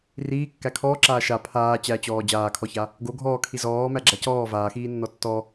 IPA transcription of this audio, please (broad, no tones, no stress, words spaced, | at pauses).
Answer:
riːkːæ kʰɔːǁaː ʃa pʰaː t͡ɕæt͡ɕɔː d͡ʑaːkʰɔça | ɡo ɡʱɔːkʰi zɔːmæɡ͡ǁa cɔː vaːxiːnːɔ tːɔ